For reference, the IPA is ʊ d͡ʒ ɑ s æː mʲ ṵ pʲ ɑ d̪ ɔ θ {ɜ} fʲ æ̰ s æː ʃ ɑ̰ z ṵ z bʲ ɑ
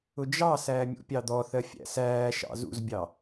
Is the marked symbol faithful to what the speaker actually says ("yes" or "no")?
yes